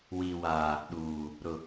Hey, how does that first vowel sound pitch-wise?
low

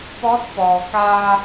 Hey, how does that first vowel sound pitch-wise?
rising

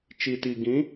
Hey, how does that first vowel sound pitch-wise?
low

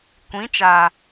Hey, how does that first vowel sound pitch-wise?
rising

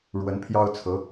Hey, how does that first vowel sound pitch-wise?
rising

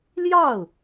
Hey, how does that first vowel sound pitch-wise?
falling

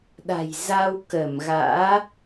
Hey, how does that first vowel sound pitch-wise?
low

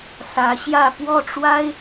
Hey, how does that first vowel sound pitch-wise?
rising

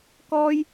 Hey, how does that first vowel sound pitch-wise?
high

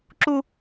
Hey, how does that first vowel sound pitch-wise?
high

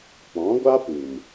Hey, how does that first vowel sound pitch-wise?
rising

